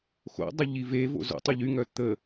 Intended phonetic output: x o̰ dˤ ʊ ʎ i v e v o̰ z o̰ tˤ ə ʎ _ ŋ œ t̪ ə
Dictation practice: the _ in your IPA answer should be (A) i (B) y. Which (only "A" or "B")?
B